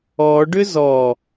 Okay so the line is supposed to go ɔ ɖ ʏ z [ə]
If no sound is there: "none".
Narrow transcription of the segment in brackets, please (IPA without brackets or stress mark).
ɔ